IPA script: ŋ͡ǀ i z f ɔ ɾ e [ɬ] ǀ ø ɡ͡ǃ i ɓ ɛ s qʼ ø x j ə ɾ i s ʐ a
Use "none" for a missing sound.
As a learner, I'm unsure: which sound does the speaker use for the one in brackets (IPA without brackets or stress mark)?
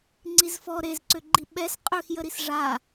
z